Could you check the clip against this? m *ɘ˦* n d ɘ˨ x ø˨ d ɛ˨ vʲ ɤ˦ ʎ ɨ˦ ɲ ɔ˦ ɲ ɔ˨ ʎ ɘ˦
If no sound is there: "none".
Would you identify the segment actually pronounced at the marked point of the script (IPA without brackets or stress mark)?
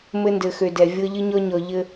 ɘ˦